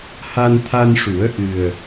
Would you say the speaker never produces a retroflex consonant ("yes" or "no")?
no